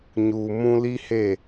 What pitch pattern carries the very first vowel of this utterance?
low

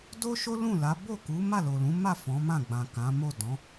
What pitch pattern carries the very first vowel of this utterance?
high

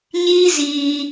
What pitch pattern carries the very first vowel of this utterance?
high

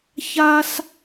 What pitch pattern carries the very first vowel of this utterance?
high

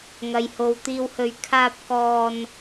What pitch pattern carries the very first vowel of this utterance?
low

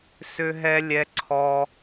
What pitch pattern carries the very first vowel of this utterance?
high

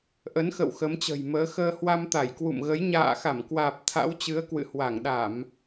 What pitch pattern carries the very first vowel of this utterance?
rising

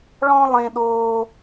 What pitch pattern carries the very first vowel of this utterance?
high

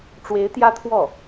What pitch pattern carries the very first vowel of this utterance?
rising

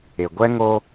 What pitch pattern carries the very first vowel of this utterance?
low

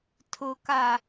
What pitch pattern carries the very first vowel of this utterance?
low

